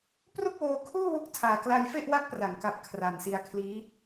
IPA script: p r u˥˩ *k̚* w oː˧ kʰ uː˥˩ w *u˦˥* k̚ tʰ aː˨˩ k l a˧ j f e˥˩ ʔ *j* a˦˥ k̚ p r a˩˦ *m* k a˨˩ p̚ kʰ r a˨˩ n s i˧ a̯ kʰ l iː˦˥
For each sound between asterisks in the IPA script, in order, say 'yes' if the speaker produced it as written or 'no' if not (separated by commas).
yes, yes, no, no